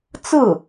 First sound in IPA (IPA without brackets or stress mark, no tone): t͡s